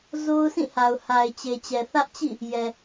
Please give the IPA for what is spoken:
z o˦ ʊ̯ s ĩ˦˨ h a˨ ʊ̯ h a˨ ɪ̯ t͡ɕ e˨ t͡ɕ ɛ˨ θ ä˦ ʔ t͡ɕ ḭ˦˨ | j ɛ˨

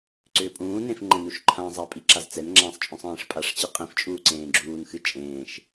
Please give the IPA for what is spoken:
ǀ ʏː pʼ ũː n ẽ f ŋ͡ǃ ɛ̃ n u ʃ ǃʰ ã zˤ a pʼ i ǁ a z t͡s ɛ n ŋ͡ǁ ãː sˤ t͡ʃʼ ũ sˤ ẽː ʂ pʼ a ʂ t͡ɕ ɨ qʼ ĩ f t͡ʃʼ uː ǀ ẽː ɡ͡ǁ uː n x ɨ t͡ʃʼ ẽː ʃ

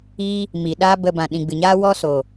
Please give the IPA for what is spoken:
iː˧ | m i˨ ɗ aː˦ b ə˧ b ã˨ ɗ ĩ˨ ɡ͡b ɨ˨ ɲ aː˦ w ɔ˦ s oː˨

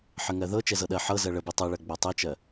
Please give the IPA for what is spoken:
ħ ə ŋ ɜ ð ɤ t͡ʃ ɛ z ɤ ɗ ɜ ħ ɤ z ɜ ɭ ə b i tˤ ɤ ɭ ɜ ɡ͡b ɜ tˤ ɛ t͡ʃ ɜ

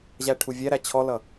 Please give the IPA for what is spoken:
ʑ æ ʈʰ u vʲ æ ɾ æ t͡ɕʰ ɔ l ʌ

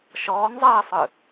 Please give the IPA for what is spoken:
ʃ ɔː ŋ zˤ ɜː sˤ ɯ

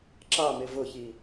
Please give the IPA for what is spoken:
ǁ ɑ m ɪ v ʊ ç i

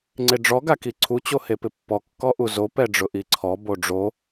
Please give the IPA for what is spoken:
ŋ͡ǀ e ɖ͡ʐ ɔ ɡ a k i ǀʰ u t͡ɕ o h e p ɪ pː ɔ kː ɔ ʔ u z o p ɛ ɖ͡ʐ ʊ ʔ i ǀʰ ɔ b o ɖ͡ʐ o

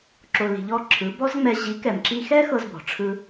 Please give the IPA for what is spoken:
ǁ o˧ l i̤˧ ʎ ɔ˦ ǁʰ ɯ˨˦ b ɔ˦ z ŋ͡m ɛ˧ ʑ i˨˦ k ɛ˨ m ǁ i˧ x ɛ˦ x ɤ˦ z b ɔ̤˨ ʈ͡ʂʰ ɯ˦

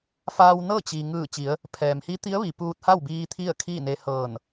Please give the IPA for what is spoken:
f aː˧ w n ɤː˥˨ t͡ɕ i˩ ŋ ɯː˧˩ t͡ɕ i˩˧ ə̯ | pʰ ɛː˩ m h i˧˥ t̪ i˧˥ ə̯ ʋ i˩ p uː˧ t̚ h a˥˨ w b iː˧ t̪ʰ i˥˨ ə̯ kʰ iː˥˨ n e˧ h ɤː˧˩ n

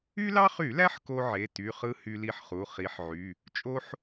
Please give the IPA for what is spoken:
y˦ l ɑ˦ χ y˧˩˧ l æ˦ ħ k o˦ ʕ e˩˧˩ t y˩˧˩ χ ɯ˦ h y˦ l i˦ ħ χ u˩˧˩ χ i˨˦ ħ ʕ y˩˧˩ | t͡ʃʼ o˦ ħ

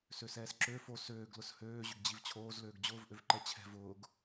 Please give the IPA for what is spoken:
s ø s ɛː s ǁ ø f o s øː ɡ l ʊ s h øː ʑ ʏ ɡ d͡ʑ i v t͡ɕʰ oː z l øː ɡ d͡ʑ ʊː v ʔ ø v ǃ ɛ t͡ɕʰ ɛ̤ v ʊː ɡ

